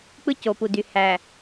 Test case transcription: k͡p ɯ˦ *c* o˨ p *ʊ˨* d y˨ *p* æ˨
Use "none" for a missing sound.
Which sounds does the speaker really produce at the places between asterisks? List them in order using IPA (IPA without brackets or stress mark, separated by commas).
c, u˨, h